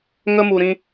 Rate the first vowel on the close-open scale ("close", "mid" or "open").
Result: mid